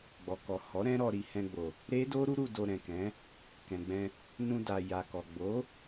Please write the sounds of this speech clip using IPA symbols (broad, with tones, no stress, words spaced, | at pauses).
ɡ͡bɔ˨kɔ˨ hɔ˨˦ ɾɛ̃˦ɾɔ˧ɾi˧ hɛ̃˧ɡ͡bo˨ | ɾe˦do˦ɾu˦ɾu˧ do˧ɾɛ̃˨kɛ̃˨˦ | kɛ̃˨ɡ͡bɛ̃˧ | nũ˧da˨ ja˨kɔ˨ ɡ͡bo˨˦